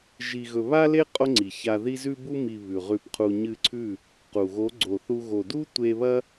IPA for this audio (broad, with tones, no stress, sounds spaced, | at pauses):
ʒ i˧ ɣ ɵ˧ β a˦ l e˦ qʼ o˦ ŋ͡ǀ i˨ ç a˧ ð i˦ z ʉ˧ b u˧ m i˨ β ʉ˨ ʁ ʉ˧ p qʰ u˧ ɲ ɨ˧ ǀʰ ʉ˦˨ | q u˨ ɣ o˨˦ ɡ͡ǀ o˨ θ u˧ ɣ o˨ d u˦ tʷ e˧ β ɐ˦